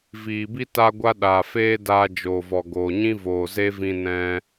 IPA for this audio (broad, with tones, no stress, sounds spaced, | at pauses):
v iː˨ b i˦ t a˦ ɡʷ a˦ ɗ aː˨ f eː˦ d aː˧ d͡ʒ oː˨ v ɔ˨ ɡ oː˨ ɲ ĩ˦ v oː˨ z e˦ v ĩ˧ n ɛ̃˧